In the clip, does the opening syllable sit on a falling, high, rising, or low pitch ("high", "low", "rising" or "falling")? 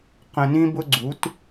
low